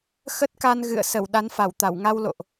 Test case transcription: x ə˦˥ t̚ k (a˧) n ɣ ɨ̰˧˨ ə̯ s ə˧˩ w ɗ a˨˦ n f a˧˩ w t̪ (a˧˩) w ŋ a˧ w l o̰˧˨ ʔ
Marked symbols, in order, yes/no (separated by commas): yes, yes